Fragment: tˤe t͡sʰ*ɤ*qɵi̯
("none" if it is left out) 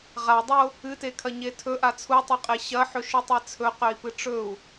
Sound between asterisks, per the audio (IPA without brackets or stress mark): ɵ